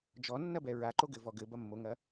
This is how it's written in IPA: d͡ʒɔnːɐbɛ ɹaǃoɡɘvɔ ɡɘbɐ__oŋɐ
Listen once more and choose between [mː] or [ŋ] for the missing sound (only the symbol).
mː